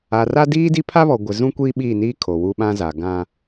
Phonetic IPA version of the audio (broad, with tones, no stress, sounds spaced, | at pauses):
a˨ r a˦ d iː˦ d i˦ pʰ a˦ β ɔ˨ ɡʷ ɪ˨ z ũ˦ kʷ iː˦ ɓ iː˦˨ n iː˦ kʰ o˨ w u˦ ɓ ã˦ z a˨ ɡ ã˦